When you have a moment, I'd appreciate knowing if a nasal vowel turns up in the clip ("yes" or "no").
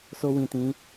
yes